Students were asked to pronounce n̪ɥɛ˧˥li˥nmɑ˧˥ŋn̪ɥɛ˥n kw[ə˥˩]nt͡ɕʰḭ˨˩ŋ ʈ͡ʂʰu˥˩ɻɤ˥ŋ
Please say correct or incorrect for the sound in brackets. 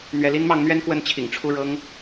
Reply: correct